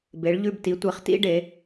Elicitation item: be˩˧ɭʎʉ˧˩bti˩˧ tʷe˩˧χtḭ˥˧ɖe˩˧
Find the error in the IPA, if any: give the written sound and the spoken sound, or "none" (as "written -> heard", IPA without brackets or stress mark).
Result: none